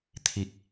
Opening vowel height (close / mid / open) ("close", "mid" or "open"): close